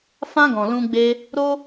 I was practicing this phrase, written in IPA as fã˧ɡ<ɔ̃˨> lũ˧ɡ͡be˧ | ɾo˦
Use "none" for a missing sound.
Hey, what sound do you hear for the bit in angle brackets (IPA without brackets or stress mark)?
ɔ̃˨